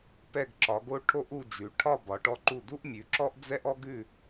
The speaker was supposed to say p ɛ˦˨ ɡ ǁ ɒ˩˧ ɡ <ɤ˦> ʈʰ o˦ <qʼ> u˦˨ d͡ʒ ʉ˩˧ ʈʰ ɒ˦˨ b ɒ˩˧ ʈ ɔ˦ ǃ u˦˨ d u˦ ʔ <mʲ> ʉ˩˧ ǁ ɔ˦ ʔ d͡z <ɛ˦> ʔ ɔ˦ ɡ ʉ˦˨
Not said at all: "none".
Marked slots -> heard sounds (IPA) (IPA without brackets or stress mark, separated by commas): o˦, ʔ, mʲ, ɛ˦